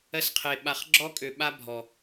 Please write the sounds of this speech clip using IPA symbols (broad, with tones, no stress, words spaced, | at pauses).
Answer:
ɜ˦sqʰe˨ ɓa˨χ ɡ͡ǁɔ˦kʼø˨ɓa˦ bʱɔ˨